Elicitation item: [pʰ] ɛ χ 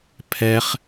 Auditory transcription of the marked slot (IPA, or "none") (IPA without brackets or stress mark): pʰ